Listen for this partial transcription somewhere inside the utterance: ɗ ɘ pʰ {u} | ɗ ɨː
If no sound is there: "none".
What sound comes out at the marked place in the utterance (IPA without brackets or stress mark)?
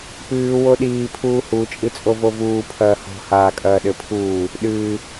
uː